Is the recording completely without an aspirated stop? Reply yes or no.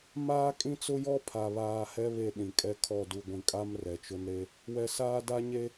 no